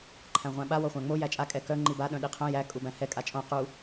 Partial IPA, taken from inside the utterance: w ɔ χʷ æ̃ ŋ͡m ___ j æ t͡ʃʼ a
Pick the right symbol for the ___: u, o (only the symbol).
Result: o